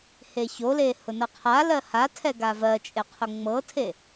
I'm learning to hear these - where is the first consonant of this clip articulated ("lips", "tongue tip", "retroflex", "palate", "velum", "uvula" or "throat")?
throat